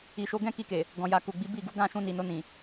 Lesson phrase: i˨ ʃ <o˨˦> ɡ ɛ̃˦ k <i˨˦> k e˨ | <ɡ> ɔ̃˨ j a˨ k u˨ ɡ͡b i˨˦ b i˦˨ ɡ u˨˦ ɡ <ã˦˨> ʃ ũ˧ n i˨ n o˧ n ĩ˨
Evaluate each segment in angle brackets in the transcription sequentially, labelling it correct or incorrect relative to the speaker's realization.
correct, incorrect, correct, correct

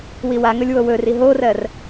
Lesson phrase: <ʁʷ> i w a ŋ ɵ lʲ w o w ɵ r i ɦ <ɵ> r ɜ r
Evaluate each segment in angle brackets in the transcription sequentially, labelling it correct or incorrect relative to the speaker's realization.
incorrect, incorrect

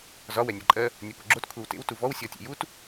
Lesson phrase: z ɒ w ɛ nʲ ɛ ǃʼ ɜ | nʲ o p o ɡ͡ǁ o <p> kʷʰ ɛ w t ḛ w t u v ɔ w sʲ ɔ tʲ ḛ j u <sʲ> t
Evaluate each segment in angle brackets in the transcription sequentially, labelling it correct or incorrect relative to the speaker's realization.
incorrect, incorrect

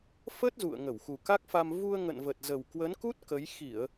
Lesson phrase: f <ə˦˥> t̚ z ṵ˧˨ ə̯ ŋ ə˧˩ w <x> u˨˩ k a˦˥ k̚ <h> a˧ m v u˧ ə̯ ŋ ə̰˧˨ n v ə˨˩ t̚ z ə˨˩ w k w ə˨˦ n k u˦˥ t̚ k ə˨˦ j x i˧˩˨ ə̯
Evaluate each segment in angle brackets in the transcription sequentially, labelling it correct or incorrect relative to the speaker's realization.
correct, correct, incorrect

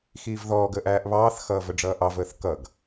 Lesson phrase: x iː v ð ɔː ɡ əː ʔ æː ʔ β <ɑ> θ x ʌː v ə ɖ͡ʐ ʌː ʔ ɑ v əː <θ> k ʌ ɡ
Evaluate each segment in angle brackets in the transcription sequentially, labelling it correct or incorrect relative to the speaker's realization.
incorrect, correct

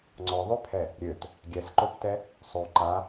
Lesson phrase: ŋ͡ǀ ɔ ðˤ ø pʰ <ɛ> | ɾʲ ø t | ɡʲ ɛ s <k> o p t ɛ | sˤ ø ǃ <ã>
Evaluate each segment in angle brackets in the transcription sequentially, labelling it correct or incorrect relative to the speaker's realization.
correct, incorrect, incorrect

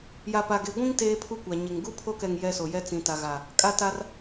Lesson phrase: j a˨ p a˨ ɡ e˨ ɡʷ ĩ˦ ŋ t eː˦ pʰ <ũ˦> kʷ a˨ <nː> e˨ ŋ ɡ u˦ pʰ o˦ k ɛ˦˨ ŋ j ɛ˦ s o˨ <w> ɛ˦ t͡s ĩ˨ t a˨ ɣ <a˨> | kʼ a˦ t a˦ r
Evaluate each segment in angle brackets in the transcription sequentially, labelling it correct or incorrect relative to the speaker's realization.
incorrect, incorrect, incorrect, correct

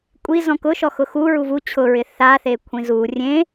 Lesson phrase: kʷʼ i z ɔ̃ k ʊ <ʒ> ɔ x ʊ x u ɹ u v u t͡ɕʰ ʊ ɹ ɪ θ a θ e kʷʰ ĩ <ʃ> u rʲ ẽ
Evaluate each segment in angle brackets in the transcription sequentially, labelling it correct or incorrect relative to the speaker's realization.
incorrect, incorrect

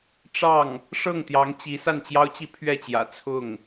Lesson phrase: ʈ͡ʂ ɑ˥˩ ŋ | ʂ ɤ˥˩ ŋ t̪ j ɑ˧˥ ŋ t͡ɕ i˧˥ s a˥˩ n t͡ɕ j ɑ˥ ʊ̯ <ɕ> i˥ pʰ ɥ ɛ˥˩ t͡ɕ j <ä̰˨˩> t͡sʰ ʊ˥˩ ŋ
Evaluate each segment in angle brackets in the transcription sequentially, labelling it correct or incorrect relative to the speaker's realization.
incorrect, correct

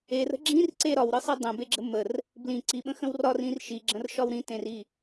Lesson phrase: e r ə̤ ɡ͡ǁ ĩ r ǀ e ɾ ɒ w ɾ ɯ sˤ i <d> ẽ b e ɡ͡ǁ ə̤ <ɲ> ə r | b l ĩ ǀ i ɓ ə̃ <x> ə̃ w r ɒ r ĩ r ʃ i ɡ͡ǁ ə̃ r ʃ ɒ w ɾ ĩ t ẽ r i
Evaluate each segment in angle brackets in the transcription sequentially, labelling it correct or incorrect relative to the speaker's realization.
incorrect, incorrect, correct

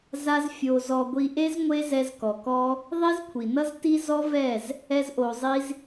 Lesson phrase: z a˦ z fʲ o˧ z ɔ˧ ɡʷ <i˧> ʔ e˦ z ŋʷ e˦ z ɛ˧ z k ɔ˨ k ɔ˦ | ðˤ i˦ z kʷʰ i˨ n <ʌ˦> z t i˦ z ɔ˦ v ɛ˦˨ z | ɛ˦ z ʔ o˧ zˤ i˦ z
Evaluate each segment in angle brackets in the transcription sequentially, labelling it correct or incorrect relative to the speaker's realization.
correct, correct

